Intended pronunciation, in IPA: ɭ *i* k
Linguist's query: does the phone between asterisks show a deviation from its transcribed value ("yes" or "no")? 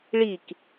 no